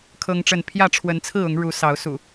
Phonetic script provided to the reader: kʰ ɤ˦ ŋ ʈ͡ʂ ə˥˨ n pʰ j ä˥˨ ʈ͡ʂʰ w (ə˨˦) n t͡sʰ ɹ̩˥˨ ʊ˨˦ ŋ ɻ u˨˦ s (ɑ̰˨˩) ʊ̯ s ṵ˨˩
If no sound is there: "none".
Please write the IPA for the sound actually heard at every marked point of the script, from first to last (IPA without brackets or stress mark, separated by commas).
ə˨˦, ɑ˨˦